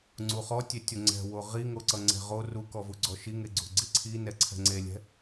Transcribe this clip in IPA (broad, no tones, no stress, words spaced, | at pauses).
ŋ͡ǀuχɔtʲetʲo ŋ͡ǀɛ̤wo ʁiŋoǀʌ ŋ͡ǀɛ̤ʁo rukɔvu ɡ͡ǀɔʃiŋe ɡ͡ǀṳɡ͡ǀiǀʰinɛ ǀʰɛ̤ŋ͡ǀelʲɛ̤